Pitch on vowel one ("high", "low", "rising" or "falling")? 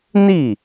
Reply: falling